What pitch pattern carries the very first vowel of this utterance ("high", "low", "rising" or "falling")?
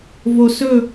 low